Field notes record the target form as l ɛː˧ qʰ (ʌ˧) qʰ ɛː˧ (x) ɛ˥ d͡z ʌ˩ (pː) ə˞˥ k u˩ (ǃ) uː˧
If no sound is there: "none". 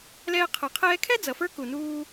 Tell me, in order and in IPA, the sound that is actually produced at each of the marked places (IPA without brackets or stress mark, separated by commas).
ʌ˩, kʰ, f, n